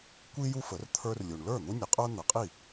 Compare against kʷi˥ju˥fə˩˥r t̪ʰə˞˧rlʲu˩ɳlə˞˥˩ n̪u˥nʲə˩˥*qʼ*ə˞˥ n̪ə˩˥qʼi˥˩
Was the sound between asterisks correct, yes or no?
yes